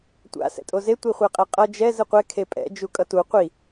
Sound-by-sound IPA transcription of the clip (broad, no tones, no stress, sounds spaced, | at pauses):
tʷ a̰ s ɛ̰ tʼ o z e tʷ i χʷ e qʼ ɛ qʼ ʌ d͡ʒ ɛ z ɯ qʷ ɛ kʰ e pʼ ɛ̰ d͡ʒ u kʼ ʌ t u qʷ i